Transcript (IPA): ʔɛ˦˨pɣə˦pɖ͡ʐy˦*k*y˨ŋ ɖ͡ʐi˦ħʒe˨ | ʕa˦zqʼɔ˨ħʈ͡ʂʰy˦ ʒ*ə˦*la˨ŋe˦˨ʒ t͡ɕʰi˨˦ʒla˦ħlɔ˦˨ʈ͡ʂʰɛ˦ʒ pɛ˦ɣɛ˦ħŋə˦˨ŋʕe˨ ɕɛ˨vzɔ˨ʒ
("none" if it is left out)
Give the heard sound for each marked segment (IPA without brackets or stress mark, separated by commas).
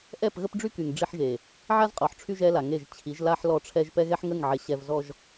k, ɛ˦